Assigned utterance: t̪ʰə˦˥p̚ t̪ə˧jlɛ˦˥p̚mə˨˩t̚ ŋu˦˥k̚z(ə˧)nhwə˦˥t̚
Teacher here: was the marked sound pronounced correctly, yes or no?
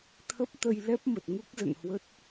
no